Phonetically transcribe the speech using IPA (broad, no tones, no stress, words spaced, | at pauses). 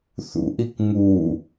θṵʔik ŋu